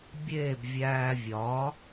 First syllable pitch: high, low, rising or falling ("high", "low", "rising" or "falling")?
falling